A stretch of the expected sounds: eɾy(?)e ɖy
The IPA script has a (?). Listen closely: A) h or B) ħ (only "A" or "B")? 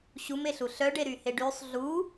A